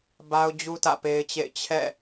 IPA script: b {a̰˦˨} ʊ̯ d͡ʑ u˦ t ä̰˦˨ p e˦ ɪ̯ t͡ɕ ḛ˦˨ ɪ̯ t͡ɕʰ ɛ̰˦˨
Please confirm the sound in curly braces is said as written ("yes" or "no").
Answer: no